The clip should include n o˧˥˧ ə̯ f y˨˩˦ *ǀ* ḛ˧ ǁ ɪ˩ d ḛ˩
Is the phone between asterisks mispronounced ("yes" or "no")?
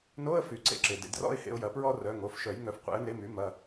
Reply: no